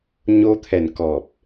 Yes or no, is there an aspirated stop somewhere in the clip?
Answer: yes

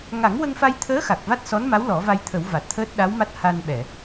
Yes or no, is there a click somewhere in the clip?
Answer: no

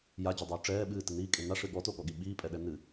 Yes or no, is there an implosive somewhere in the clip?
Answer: yes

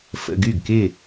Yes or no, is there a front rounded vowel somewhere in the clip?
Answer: yes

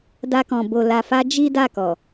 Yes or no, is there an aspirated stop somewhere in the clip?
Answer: no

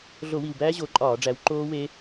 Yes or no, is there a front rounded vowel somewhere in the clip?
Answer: no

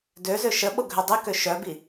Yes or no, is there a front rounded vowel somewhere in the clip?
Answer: yes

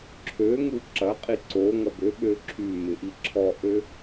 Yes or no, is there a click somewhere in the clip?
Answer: yes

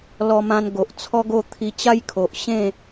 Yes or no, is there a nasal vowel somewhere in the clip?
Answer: yes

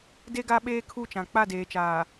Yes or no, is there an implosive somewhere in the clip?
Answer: yes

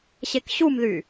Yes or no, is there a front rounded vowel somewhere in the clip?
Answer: yes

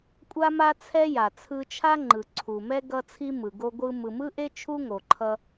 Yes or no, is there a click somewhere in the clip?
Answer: yes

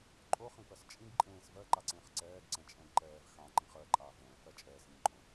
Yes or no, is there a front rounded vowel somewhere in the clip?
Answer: no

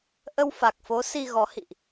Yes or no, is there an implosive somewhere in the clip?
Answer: no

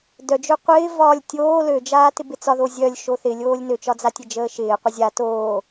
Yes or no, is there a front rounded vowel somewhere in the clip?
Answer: yes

